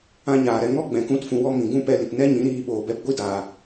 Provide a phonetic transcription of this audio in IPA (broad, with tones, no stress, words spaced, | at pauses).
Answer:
ã˦ɲaː˨ɾɛ˧ ŋɔ˦ɡ͡bɛ̃˨ kũ˦tfũ˧wɔ˦ mĩ˨ɡũ˦pɛ˧li˨p nɛ˦ɲĩ˨˦ ɾiː˦ɓoː˧ bɛ˧pɡʷi˦daː˨